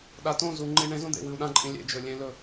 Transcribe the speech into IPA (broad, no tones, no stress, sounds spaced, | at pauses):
ɗ a t õ z u ŋ͡ǃ i ɳ ẽ z õ d̪ ḛ w ɨ u̯ ɗ ã ǃʼ ĩ lʲ ḛ d͡ʒ ɵ lʲ ẽ l ɵ